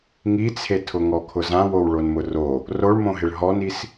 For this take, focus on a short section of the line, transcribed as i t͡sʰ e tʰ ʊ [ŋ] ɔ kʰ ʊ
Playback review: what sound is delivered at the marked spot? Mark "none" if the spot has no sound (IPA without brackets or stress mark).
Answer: ŋ